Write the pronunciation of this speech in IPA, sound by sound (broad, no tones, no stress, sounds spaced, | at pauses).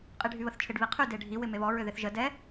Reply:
qʼ i ɖʱ y β ə θ t͡ʃʰ ɪ ɖ β i qʰ y d e ɖʱ i w ɪ m e β ɔ ɹ ʏ ð ɪ θ ʒ ə d ɛ